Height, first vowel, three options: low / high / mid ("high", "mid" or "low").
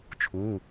high